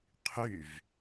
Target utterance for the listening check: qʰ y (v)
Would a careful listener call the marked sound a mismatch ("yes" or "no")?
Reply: no